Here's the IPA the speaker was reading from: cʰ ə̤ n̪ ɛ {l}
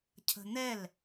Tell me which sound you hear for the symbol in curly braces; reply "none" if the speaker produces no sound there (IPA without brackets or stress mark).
l